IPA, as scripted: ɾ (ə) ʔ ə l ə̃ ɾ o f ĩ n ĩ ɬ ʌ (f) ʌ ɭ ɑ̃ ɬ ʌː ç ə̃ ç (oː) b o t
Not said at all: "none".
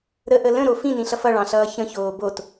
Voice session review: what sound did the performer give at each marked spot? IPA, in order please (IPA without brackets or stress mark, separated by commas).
ə, f, oː